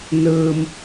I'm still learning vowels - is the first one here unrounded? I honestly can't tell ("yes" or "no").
yes